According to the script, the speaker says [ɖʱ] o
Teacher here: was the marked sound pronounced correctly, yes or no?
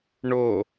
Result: no